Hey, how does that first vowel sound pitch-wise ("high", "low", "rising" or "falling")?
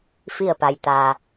falling